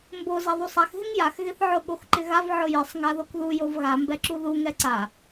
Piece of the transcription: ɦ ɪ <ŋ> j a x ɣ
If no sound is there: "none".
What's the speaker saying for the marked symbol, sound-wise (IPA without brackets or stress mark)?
ŋ